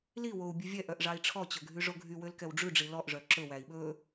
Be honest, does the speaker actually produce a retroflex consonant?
yes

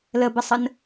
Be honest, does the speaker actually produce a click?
no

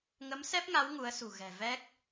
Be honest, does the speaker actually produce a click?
no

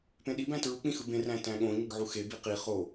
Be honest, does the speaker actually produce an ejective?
no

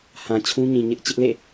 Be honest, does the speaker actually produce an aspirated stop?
yes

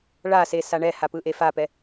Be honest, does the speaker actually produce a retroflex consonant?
yes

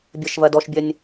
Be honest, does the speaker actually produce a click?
no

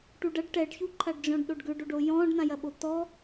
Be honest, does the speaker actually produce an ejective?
no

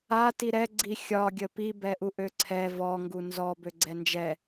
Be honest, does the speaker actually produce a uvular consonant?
no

